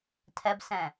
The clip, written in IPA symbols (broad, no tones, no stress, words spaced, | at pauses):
tʰɛbsɛ̃